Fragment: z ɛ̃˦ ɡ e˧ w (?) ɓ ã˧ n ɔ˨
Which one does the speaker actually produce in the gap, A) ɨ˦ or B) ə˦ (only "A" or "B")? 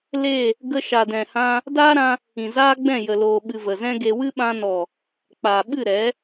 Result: A